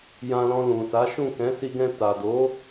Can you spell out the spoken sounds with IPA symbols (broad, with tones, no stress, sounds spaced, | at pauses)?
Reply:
j ã˧ l ɔ̃˧ l ũ˨ s a˨˦ ʃ ũ˦˨ k ɛ̃˨˦ s i˧ ɡ ɛ̃˧ t a˨ d o˨˦